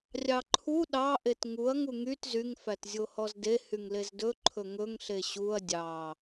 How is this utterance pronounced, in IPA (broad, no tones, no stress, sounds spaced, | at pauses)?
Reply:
rʲ ɑ ǃʰ u ɗ ɑ ʔ e t ŋ u ɐ̯ ŋ u ŋ y t z y ŋ f æ t zʲ o h ɔ z d e h y ŋ l e z d ɵ ǃʰ ɵ ŋ ɵ ŋ ɬ e ɕ u ɐ̯ dʲ ɑ